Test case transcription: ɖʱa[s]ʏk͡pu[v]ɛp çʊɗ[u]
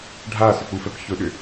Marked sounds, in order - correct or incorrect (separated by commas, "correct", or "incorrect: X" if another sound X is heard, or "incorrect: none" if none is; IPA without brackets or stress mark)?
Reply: correct, incorrect: f, incorrect: ʏ